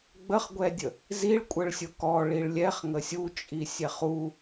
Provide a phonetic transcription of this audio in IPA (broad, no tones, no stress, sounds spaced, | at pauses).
ɡ͡b ə χ ɡʷ ɛ dʲ ə | z i ɭ kʷʼ ə ɭ sʲ ʊ k ɔ ɭ i ɭ lʲ ɛ χ ŋ ə sʲ u t͡ʃʼ i sʲ ɛ χ u